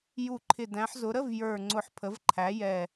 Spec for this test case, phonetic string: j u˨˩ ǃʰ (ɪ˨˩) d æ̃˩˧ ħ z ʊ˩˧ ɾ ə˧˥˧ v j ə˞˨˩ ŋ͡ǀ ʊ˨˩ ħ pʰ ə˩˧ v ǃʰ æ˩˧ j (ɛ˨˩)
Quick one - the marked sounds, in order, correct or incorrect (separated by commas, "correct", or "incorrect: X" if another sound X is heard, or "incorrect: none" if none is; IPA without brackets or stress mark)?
correct, correct